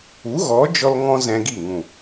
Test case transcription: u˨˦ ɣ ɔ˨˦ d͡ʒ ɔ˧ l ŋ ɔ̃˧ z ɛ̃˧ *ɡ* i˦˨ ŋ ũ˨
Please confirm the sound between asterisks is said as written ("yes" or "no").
yes